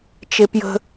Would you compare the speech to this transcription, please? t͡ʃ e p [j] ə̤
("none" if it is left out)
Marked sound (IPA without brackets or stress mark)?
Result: j